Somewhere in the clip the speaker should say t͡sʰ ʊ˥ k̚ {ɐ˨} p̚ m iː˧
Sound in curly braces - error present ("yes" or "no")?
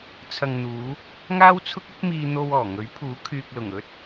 yes